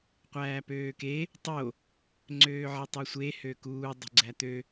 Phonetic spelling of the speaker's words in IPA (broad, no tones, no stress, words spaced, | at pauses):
qʷæːpøːke | tˤo | ŋ͡ǀøːʕitˤɛsʷe høkuː dˤṳɡ͡ǀæt̪ø